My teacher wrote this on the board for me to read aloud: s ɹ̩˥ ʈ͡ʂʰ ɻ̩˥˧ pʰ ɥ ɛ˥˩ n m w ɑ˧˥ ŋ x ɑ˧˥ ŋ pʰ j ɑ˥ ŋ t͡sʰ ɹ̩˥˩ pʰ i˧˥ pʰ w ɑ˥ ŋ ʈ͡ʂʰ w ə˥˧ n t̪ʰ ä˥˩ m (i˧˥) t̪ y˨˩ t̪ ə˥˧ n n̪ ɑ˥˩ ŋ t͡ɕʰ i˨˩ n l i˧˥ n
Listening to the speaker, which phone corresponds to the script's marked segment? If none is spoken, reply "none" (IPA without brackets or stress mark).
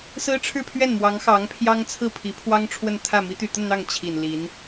i˧˥